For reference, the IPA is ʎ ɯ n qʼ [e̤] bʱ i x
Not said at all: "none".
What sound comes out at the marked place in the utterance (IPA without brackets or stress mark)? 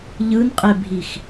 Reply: e